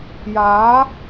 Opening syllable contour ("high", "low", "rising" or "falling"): rising